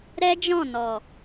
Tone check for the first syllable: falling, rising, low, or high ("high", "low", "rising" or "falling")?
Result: high